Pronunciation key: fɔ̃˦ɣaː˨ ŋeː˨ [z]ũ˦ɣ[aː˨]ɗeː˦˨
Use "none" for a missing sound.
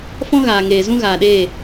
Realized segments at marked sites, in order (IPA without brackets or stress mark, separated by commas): z, aː˨